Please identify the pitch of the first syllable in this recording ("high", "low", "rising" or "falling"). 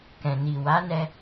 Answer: low